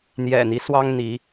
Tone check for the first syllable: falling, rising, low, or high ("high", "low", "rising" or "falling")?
low